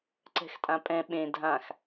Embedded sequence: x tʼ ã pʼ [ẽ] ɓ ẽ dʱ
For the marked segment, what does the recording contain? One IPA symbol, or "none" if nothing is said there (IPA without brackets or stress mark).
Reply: ɛ̃